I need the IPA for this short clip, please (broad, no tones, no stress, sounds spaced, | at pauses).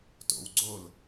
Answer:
t o̰ w ɡ͡ǀ o l